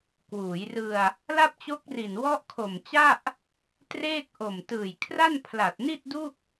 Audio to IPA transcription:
kwuː˩˦jrɯ˧a̯ | la˥˩p̚t͡ɕo˦˥k̚ri˨˩n wɔ˦˥ʔkʰo˨˩mt͡ɕa˥˩ʔ | treː˥˩k̚ ʔo˨˩mtɯː˨˩jkʰra˥˩n pʰla˨˩t̚ni˥˩t̚du˥˩k̚

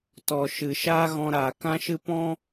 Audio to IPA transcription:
tɔ˨ ʃɨ˨ʃaː˦ɣɔ̃˧ ɾaː˨kã˦ʃɨ˦ pɔ̃˦

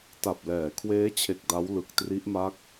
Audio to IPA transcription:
ta˨˩p̚lɛː˩˦kʰweː˦˥t͡ɕʰe˨˩k̚ da˦˥wlɯ˨˩k̚tri˦˥ʔma˦˥k̚

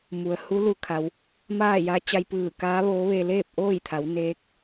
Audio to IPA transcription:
mu˩ə̯hu˧˥ lu˧˥kʰa˩˧w | maː˥˨ja˧˥ t͡ɕa˧jpɯː˧˩kaː˧˥ʋoː˧˥ ʋe˧leː˥˨p̚ʔoː˥˨jt̪ʰa˩˧w neː˧˥k̚

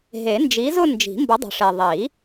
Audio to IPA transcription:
ɦe˨˩˦nd͡ʒi˨˥zʊ˥˧ nd͡ʒi̤˨˩˦mbʊ˨˥dˤə̤˨˩ʂe˨˩ ðˤi˨˩˦

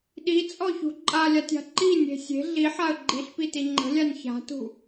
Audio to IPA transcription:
ɗit͡sʼɔçṳ ǃʼalʲatʲa̤ ǃinʲe̤ sʲe̤ ɮiħaə̯ ɡ͡ǃiɬpiti ŋ͡ǃə̤lʲanʲ ça̤tṳ

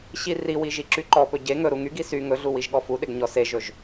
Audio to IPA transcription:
ɕiriwi ʒiǁyǃɔpɵ ɟe ŋɵɾu ŋyɡi sy ŋɵɮu wiʒɠɔfuɗeɡ ɲɔseʒɵʒ

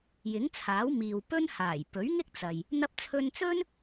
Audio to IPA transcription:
jɪ˨˥ŋt͡sʰaː˨˥w miː˨wpɵ˥nhaː˨˩j pɵ˨˥ɥŋɪ˥k̚t͡sɐ˨j | n̪ɐ˧p̚t͡sʰɵ˧nt͡sɵ˥n

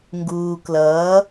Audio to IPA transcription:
ŋɡuː˨klʌː˨˦

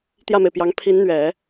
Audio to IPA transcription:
t̪jä˥˩me˩ɪ̯pjɑ˧˥ŋ pʰi˧˥nn̪ɥɛ˨˩˦

